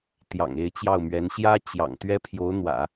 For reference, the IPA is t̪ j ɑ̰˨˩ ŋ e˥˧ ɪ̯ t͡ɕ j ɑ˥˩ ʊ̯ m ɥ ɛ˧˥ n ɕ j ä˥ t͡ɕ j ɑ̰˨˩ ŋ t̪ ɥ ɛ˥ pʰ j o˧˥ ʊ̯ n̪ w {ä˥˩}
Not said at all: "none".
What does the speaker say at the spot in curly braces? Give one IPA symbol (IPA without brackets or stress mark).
ä̰˨˩˦